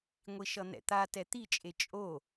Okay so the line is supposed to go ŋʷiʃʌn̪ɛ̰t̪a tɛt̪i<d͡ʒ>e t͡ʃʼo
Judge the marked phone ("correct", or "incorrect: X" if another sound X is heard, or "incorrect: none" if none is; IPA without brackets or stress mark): incorrect: t͡ʃʼ